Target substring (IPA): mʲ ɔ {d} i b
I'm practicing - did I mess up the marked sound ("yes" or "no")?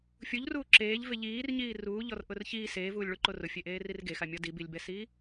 no